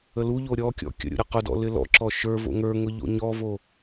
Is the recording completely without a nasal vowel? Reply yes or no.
yes